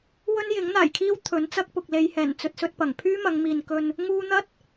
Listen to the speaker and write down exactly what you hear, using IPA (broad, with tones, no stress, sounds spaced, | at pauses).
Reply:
w ɵ˥ n j ɪ˨˥ ŋ n̪ aː˨˩ j kʰ iː˥ w t̪ʰ ɵ˨˥ n t͡s ɐ˥ k̚ p ʊ˨ k̚ l e˨˧ j h ɛː˨˩ n t͡s ɵ˧ t̚ s ɵ˧ t̚ p ɐ˨˩ ŋ pʰ yː˥ m ɐ˨˧ ŋ m iː˨ n k ɵ˧ n | ŋ uː˧ n̪ ɐ˥ t̚